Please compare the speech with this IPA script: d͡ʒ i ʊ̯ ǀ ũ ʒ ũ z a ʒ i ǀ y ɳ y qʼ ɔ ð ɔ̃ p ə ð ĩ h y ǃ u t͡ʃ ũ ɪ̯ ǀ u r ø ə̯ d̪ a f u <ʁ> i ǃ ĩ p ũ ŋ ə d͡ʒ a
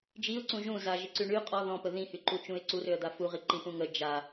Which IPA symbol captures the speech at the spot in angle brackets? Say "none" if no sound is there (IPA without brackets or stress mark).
ʁ